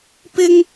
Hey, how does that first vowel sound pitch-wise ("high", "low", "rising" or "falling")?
high